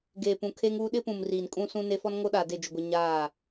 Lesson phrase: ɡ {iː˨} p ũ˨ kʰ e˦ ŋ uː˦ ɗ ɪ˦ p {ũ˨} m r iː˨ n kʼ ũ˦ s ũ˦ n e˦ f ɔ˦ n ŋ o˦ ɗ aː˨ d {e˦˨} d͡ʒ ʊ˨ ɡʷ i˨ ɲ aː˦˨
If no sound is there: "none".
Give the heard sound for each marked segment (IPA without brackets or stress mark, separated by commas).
eː˨, ũ˨, e˦˨